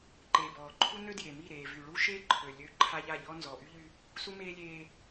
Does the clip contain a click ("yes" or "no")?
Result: yes